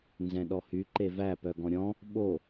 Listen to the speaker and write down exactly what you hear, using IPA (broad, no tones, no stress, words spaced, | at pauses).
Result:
nzɛ̃ɗɔhy ǃevæ pœɡɔ̃ɾʲɔ̃ | ɓo